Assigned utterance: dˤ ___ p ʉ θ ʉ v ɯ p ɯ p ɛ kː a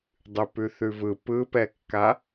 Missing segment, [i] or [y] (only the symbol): y